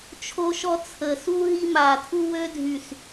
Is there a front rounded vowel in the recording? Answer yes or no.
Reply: yes